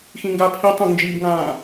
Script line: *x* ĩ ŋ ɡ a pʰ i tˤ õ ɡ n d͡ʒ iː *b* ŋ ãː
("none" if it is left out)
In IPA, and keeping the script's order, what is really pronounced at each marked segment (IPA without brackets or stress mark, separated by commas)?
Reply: x, b